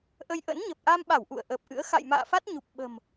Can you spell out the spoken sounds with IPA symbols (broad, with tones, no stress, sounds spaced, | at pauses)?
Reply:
ʔ ə˧ j ʔ ə̰˧˥ n ɲ ə˨˩ p̚ ʔ a˧ m ɓ a˧˩ w ʔ ṵ˧˨ ə̯ ʔ əː˨˩ p̚ ʔ ɨ̰˧˥ ə̯ x a̰˧˨ j m a̰ː˧˨ f a˦˥ t̚ ɲ u˨˩ p̚ ɓ ə̤˨˩ m